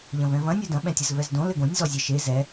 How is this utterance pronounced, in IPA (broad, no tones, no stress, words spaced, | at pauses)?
ʎɐ̃vɛ̃vɐ̃ nʲɔdɐ̃ ɓɛ̃tʲɐzvɛzdõ lɘɡõnʲ zɔzʲeʃe zɛ